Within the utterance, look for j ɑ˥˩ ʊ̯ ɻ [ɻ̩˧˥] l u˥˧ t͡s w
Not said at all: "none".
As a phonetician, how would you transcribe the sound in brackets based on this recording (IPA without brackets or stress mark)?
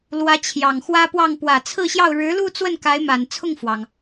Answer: ɻ̩˧˥